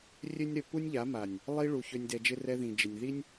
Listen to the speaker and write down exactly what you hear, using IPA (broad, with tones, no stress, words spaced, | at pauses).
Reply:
rʲø˦nʲɾœ˧ pu˦nʲʎa˨˦ma˨nʲ | lˠi˦ ɭu˧çø˦nʲ dɛ˧d͡ʒɪ˦ rɛ˧ ðĩ˨d͡ʒɪ˨nʲði˦nʲ